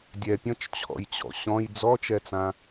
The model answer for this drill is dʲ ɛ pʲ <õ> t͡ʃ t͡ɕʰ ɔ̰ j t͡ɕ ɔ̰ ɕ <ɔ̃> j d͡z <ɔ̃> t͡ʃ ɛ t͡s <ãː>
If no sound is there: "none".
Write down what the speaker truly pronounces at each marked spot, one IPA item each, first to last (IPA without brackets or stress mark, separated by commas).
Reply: ɔ̃, ɔ̃, ɔ, ã